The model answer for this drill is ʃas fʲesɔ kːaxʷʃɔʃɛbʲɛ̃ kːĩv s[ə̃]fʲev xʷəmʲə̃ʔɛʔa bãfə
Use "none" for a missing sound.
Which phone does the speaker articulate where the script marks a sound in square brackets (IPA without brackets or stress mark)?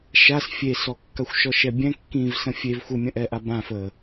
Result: ə̃